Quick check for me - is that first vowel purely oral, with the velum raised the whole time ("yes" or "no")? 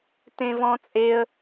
no